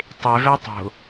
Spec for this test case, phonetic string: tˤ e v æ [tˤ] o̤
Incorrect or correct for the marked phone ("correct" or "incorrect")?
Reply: correct